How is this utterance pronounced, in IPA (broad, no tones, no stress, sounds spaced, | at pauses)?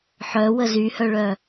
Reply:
ħ œ w ə z y h œ ɭ œ